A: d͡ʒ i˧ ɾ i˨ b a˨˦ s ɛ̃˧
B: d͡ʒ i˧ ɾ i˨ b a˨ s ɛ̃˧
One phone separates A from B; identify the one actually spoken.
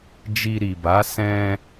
A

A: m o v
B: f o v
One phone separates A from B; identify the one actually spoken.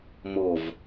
A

